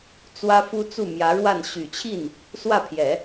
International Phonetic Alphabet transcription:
t͡s w ä˥ f u˥ t͡s u˥˩ m j ä˧˥ ɻ w a˥˩ n ɕ y˨˩ t͡ɕʰ i˥˩ n | s w ä˥˩ pʰ j ɛ˨˩˦

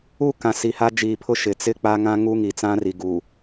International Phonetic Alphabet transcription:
u˦˨ k ã˨ s i˨ h a˦ d͡ʒ iː˨ pʰ ʊ˦ ʃ ɪ˨ t͡s ɪ˦ k͡p a˦ ŋ ã˦ ŋ u˦ ŋ i˨ t͡s ã˦ r i˨ ɡ u˨

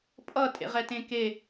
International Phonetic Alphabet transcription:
pʼ ʌ tʼ ḛ ʁ ɛ t ẽ k e

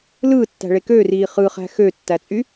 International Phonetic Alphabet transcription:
l ɯː tː æ̤ ɭ e k ø r iː χ ɯ χ æ̤ x ø tː æ t͡sʼ y

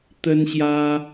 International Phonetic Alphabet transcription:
t̪ ə˦ n ɕ j ä˦

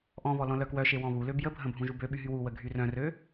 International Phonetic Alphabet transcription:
ʔ ɔ̃ β ɔ l ɔ̃ l œ k w œ ʃ e w ɔ̃ β u l ø b j ə bʱ ə̃ bʱ ũ ʒ u b ø ɓ y ɦ y w u w ə ɡʱ y r œ̃ r ø

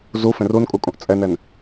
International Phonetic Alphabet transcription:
z u f ẽ r u n kʼ u kʼ ũ ʔ t͡sʼ ɛ n ɛ n

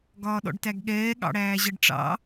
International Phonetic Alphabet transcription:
ɡ ɒː ɗ ɔ̰ ɖ t æ ɡ ɠ ɛː ɠ ɑ̰ ɽ æː ʑ ʌ ɖ ʈ͡ʂ ɑ̰

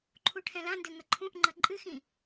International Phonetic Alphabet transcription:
ǃʰ u ʈʰ ɛ̃ l ã n d ɘ ŋ ɐ ǃʰ ũ ʔ ŋ͡ǃ ɐ ǃʼ ɨ x ĩ

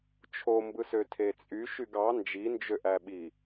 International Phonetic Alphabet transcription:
t͡ʃʰ o m b ɯ s ø tʰ e t͡sʼ y ʃ y ɡ ɑ n d͡ʒ i n d͡ʒ ø ʔ æ ɓ i

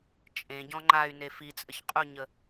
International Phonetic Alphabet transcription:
t͡ʃʼ ẽ ɟ ɔ̃ ŋ͡ǃ a y̯ n e f i t͡sʼ ə ç qʼ u ɲ ə

